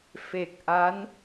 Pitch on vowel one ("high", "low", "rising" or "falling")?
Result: low